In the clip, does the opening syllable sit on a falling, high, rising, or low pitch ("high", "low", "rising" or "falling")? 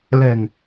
low